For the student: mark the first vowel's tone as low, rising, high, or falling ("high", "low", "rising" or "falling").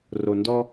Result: low